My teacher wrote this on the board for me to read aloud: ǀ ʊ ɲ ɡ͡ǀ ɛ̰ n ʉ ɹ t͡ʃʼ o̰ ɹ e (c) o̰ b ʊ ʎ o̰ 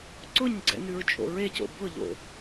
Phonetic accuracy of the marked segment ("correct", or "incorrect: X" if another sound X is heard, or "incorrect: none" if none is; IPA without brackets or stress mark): correct